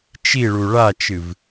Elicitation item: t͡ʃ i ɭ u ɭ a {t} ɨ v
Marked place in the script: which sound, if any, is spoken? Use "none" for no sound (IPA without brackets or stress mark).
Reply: t͡ʃ